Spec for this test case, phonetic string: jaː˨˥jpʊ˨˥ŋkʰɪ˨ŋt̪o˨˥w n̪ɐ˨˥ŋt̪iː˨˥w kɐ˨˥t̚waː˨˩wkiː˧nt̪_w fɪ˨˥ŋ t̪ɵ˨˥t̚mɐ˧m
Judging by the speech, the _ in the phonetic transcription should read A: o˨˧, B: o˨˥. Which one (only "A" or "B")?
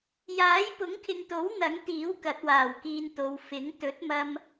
A